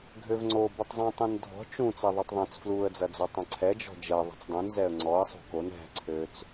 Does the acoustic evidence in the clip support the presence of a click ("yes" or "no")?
yes